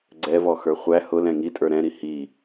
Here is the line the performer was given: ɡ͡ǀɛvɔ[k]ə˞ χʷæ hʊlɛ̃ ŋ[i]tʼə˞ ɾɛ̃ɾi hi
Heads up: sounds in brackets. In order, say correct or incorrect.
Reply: incorrect: x, correct

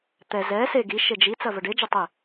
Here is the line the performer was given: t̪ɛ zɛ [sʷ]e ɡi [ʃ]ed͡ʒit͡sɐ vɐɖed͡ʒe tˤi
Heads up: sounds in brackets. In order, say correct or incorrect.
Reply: incorrect: s, correct

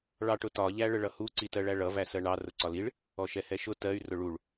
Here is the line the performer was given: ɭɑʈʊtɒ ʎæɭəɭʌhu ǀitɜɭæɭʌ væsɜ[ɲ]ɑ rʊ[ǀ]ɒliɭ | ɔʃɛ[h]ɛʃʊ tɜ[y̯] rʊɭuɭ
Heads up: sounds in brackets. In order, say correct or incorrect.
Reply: incorrect: ɳ, correct, correct, correct

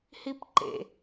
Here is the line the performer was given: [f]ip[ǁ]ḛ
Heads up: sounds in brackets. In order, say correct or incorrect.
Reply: incorrect: h, incorrect: ǃ

